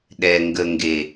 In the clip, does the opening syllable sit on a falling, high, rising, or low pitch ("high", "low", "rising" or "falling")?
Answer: low